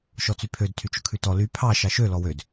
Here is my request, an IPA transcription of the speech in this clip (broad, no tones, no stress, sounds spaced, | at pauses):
ʃ ɔ t͡s y pʰ ø d tʰ y t͡ʃ ɵ kʰ ʉ t ɔ l y pʰ ɑ ʃ ɑ ʃ ø l ɔ w ø d